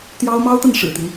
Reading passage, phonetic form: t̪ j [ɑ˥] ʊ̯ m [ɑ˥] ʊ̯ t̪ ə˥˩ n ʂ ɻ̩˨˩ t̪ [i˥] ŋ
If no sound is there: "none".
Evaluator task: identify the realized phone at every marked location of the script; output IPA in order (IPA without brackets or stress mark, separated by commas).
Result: ɑ˥, ɑ˥, i˦